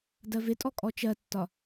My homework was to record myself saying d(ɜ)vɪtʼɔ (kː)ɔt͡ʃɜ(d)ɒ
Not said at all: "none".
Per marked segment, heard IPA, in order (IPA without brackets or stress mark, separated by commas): ɜ, kʼ, tː